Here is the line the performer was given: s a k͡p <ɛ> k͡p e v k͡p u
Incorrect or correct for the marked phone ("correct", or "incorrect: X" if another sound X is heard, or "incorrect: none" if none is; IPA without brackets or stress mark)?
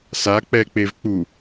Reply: correct